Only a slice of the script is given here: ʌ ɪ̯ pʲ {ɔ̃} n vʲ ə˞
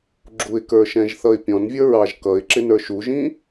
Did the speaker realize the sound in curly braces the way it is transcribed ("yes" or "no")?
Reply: yes